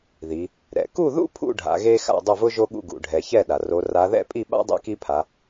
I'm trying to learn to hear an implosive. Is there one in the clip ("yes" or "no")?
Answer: yes